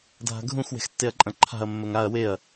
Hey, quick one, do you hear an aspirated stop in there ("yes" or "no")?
yes